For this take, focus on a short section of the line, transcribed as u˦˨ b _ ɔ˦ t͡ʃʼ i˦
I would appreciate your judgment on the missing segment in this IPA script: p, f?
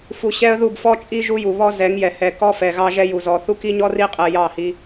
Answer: f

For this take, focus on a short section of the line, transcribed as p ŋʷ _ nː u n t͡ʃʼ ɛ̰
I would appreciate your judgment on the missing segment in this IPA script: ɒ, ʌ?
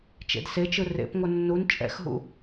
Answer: ʌ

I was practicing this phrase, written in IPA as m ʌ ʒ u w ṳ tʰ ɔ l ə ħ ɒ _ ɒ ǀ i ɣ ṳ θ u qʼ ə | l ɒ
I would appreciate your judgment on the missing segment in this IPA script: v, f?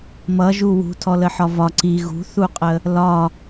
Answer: v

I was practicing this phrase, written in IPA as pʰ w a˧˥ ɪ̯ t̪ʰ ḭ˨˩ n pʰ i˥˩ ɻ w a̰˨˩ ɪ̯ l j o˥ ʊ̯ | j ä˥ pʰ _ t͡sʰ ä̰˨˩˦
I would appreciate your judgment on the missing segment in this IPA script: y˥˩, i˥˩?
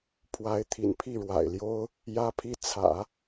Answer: i˥˩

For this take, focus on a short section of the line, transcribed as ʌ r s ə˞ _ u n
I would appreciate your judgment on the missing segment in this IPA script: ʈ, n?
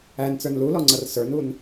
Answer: n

